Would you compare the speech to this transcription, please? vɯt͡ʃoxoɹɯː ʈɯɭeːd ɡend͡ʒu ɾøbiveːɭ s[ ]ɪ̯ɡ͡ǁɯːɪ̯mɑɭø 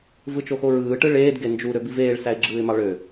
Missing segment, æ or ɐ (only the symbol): æ